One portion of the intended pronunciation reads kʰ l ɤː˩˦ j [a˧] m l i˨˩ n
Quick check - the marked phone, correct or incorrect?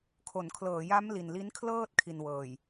incorrect